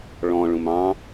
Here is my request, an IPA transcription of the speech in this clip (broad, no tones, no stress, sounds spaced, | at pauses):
ɭ ɔ̃ ɭ ũ m ɑ̃